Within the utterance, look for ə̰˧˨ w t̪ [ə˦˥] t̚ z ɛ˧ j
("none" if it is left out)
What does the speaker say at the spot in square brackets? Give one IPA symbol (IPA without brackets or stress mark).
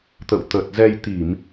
ə˨˩